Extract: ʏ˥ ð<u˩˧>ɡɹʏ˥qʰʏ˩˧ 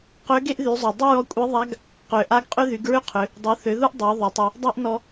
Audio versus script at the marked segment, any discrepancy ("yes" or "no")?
yes